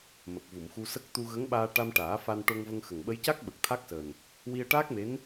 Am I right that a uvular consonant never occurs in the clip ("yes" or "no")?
yes